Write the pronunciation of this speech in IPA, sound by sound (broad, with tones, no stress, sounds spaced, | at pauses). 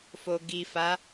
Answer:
f o˨ ɡ i˨ f a˨˦